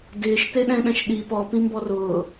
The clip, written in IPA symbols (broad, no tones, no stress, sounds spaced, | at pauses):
d ɪː ʃ t̪ e ɗ ɛ̃ ɗ ɛ̃ ʃ ɗ i p ɔ p ĩ m b ɔ r ʊː